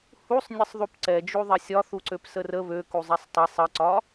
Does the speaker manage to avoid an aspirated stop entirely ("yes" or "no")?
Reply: yes